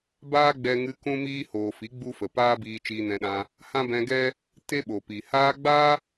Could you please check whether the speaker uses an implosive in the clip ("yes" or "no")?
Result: yes